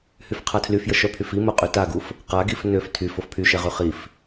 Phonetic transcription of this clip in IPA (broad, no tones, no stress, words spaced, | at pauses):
hyfqʰatʰlyfjə ʃœpʰyfimo qʼytaɡuf | qaɡif nøf tʰyf ofpʰyʃɛʁy χif